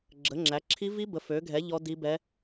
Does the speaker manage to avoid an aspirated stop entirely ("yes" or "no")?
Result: no